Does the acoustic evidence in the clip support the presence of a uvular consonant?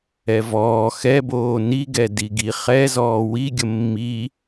yes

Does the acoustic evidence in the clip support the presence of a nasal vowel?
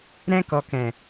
yes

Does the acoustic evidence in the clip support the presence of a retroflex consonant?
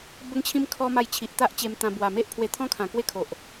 no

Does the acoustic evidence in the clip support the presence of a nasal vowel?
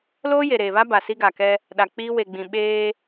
yes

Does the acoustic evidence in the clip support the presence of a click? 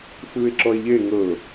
yes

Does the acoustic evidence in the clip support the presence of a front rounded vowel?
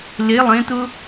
no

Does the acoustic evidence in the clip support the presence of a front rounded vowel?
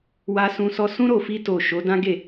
no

